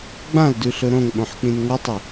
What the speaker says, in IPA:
ɡ͡bãldʉɬɵ ɾõŋɓõħk͡pĩn ŋotˤɨ

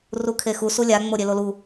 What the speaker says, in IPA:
rukʰexu sulʲa ŋ͡moɾʲelolu

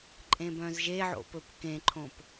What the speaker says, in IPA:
ǃʼẽbœ̃zʒeʕo̰ pɵpkẽǃʰõp

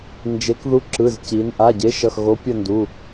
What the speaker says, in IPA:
nd͡ʒe˩˧kðu˨˥ ǁɯ˩˧˩zci˩˧n ʔa˩˧˩ɟe˨˥ ʃʌ˩˧˩xɣo˨˥pʲʌ˦˨ndu˩˧˩

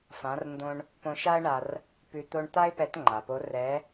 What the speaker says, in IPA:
fã˩˧rndõ˧ɳ | põ˧ʃa˥ə̯ɳa˧r | pʉ˧ t̪o˧ɳ t̪a˥ɪ̯pɛ˧˥tŋ͡ǃa˩po˧˥ rɛ˧˥

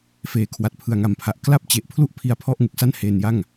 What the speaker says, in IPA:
feː˩˦kʰwa˨˩t̚ pʰɯ˨˩a̯ŋa˨˩mpʰa˨˩ʔ kla˥˩p̚t͡ɕe˨˩ʔpʰlu˥˩ʔ pʰi˧a̯pʰɔ˥˩ʔ ŋu˨˩k̚sa˥˩nheː˧nja˥˩ŋ

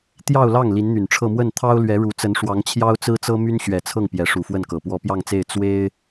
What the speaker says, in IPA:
t̪jɑ˥˧ʊ̯lɑ˥˩ŋ li˧˥nn̪y˨˩nʈ͡ʂʰɤ˥˧ mwə˥˩nt̪ʰɑ˥ʊ̯lɥɛ˧˥ɻu˧˥ t͡sə˧˥nʂwɑ˧˥ŋ t͡ɕʰjɑ˥ʊ̯t͡sɹ̩˥t͡sɤ˥ my˥nɕɥɛ˨˩t͡sʰɤ˥˩ŋ pjɛ˧˥ʂu˨˩fwə˥˩nkɤ˨˩ pwɔ˧˥pjɑ˥˧ŋt͡se˥˩ɪ̯ t͡swe˥ɪ̯

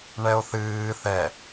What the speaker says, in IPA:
ɳɛo̯θɨː θɛ

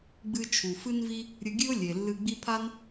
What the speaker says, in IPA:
ɡ͡bɨ˧t͡ʃʰu˩fɨ˥nvi˥ | ɾʲɨ˧ɡʲɨ˥ʊ̯ lʲe˩lːɨ˧ ɡ͡bi˥ pʰa˥n

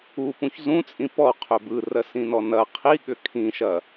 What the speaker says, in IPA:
upũç zũt͡sʼĩ pɔqʰʏ bɯrɜsĩnɔ nɐ qʰiɠʏ kʰĩʃɐ

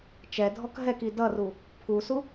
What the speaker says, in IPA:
t͡ʃɛdʱɔk ɦɛki dʌru | pʰusu

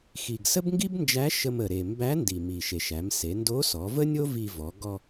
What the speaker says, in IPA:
xi˩ɡsə˥bŋɡi˥bnd͡ʒæ˧˥ ʃə˧mə˩ɾe˩ mbæ˧˥ndi˩mi˩ ʃe˩ʃæ˩˧mse˩˧ ndo˧˥sɔ˩˧və˥nʲo˥ vi˧vɔ˩˧ ɡɔ˧

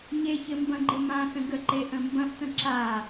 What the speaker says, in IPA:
ɲeçɘ mbɐ̃ɡ͡ǃɘmãsə̃ ɡəǃe ʔə̃mbɐ̃ʔtə̃ ǁa

